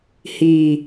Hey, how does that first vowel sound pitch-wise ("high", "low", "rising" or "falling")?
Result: low